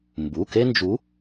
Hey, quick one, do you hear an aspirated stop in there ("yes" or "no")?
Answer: no